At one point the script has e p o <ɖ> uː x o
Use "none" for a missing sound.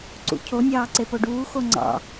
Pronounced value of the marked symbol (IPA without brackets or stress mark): ɖ